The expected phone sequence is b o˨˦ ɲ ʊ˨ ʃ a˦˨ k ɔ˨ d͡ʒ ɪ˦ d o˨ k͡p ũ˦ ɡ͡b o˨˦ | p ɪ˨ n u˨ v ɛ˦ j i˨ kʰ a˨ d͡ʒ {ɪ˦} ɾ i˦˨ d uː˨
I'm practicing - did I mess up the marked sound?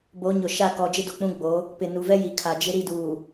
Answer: no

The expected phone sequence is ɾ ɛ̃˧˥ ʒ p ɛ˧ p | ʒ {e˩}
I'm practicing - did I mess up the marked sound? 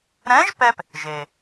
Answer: no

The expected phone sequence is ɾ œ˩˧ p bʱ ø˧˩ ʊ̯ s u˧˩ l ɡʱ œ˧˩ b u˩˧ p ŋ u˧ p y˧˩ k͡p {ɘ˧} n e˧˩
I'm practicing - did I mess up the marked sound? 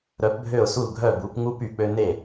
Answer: yes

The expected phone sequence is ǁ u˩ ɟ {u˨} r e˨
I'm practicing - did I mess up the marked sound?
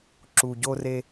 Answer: yes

